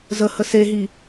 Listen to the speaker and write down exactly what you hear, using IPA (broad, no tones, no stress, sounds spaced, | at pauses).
z ə h ə s e ɦ i